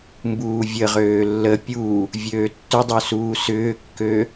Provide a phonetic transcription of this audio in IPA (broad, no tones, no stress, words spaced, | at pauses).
mbuːvʲəʁøː lːə pʲu | vʲøːtːʏdˤø suːsʏːkːø